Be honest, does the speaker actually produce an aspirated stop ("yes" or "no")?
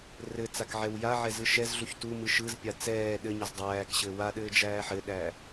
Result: no